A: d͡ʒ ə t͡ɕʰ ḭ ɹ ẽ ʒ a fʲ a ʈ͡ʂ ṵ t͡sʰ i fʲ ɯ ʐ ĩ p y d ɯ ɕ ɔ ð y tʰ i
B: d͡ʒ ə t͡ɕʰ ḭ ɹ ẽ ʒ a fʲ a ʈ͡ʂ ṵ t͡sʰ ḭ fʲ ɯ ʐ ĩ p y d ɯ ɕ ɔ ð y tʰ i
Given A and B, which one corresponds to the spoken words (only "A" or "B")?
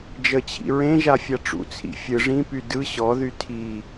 B